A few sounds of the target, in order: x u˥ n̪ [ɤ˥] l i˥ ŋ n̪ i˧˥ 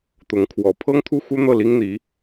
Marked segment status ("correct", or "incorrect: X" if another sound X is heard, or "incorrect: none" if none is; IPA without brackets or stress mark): incorrect: ɤ˥˩